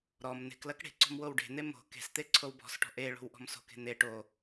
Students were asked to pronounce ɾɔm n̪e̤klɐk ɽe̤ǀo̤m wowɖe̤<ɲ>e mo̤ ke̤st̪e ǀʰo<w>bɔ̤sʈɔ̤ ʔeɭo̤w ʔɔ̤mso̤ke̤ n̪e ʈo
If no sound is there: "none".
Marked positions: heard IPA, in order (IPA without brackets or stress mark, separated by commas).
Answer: n̪, w